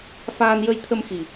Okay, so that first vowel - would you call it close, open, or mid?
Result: open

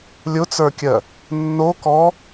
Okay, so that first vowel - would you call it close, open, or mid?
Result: close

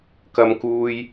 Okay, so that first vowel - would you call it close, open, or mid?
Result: open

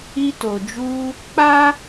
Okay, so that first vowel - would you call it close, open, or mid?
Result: close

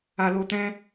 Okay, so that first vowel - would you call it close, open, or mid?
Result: open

